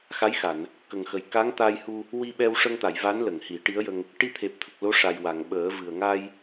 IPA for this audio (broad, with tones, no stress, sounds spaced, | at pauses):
x a˧˥ j x a˨˩˨ n | k ə˨˩ ŋ x ə˨˩ j k a˧˥ ŋ t̪ a˧ j h u˧ | w i˧ ɓ ɛ˧ w ʂ ə˧ ŋ t̪ a˨˩˨ j v a˧˥ n l ə˨˩˨ ŋ h i˨˩˦ ʈ i˧˥ ə̯ j ə˧ ŋ | ʈ i˧ t̪ʰ e˨˩ p̚ t̪ʰ ə˨˩ k̚ l o˧˥ ʂ a˨˩ j w a˨˩˨ ŋ ɓ əː˨˩˦ v ɨ˨˩ ə̯ ŋ a˧ j